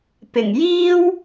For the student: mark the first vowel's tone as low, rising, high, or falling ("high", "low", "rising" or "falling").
low